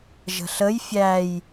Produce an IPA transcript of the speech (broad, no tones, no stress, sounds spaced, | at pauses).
ʒ ə̤ ɬ ə j fʲ æ j